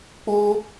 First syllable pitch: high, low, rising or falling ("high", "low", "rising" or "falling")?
high